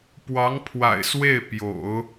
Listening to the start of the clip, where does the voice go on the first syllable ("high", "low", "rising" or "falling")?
rising